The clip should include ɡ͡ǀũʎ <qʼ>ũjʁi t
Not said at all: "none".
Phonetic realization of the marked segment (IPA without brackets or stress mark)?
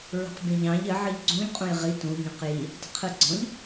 qʼ